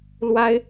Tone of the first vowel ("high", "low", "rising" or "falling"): high